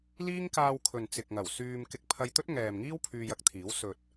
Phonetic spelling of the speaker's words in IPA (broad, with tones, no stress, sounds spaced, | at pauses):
l iː˥ ŋ k aː˧ w kʰ ɵ˨ n t͡s ɪ˨ k̚ ŋ ɐ˨˩ w s yː˧ m k ɪ˧ k̚ pʰ ɐ˧ j t̪ ɵ˥ t̚ ŋ ɛː˨ m ŋ iː˥ w pʰ yː˧ j ɐ˧ k̚ t̪ʰ iː˨˥ w s ɵ˨ t̚